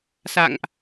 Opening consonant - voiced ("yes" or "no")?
no